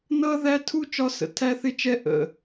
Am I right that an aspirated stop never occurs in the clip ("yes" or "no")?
no